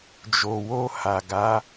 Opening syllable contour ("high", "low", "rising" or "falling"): low